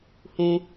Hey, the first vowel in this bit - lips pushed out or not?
yes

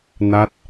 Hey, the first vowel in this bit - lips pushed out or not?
no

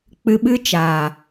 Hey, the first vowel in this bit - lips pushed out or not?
no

